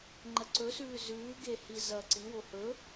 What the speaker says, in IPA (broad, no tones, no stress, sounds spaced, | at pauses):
ŋ͡ǃ ɐ ǀ ɵ s ʉː z ʉː ɡ e h i z ɐː ǀ i w o h ɵ